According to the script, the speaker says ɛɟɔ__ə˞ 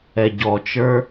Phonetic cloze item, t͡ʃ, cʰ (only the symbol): t͡ʃ